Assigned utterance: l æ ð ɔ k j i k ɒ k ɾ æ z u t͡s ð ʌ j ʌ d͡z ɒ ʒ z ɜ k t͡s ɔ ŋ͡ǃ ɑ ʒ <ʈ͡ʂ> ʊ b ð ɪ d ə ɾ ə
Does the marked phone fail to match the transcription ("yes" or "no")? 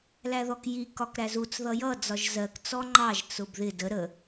yes